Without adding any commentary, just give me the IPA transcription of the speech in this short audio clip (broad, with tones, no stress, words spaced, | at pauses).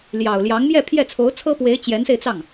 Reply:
ljɑ˨˩ʊ̯ljɑ˧˥ŋmjɛ˥˧ pʰjɛ˥˩t͡sʰo˧˥ʊ̯t͡sʰɤ˥pwe˧˥ɪ̯ t͡ɕjɛ˧˥nse˧ɪ̯t͡sɑ˥˩ŋ